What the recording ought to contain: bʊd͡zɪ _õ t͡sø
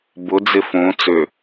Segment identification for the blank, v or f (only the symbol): f